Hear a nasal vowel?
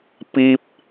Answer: no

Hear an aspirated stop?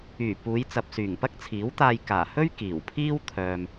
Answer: yes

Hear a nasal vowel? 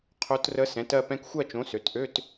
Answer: yes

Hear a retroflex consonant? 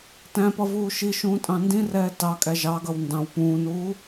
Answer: no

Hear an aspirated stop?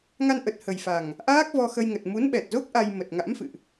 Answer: no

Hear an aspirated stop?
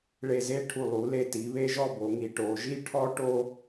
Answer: yes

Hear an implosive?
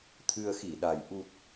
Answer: yes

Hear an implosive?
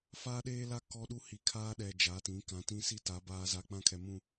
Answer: yes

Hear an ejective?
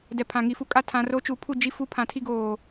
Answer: yes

